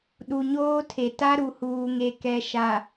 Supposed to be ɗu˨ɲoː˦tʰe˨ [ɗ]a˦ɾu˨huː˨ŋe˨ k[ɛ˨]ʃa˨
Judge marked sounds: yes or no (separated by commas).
no, yes